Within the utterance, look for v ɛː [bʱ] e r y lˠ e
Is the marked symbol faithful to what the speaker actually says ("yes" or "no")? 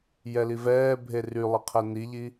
yes